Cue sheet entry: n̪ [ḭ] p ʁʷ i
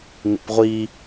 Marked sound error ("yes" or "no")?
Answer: no